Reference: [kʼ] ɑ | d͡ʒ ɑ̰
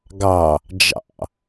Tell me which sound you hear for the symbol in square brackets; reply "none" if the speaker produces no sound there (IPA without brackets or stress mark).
ɡ